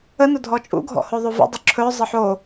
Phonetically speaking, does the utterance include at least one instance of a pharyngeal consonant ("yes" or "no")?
yes